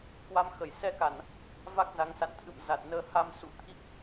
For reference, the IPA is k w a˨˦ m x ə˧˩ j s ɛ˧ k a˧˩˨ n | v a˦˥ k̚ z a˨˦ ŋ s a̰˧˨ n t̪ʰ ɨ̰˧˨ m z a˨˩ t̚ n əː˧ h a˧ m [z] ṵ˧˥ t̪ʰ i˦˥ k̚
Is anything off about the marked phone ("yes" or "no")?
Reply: yes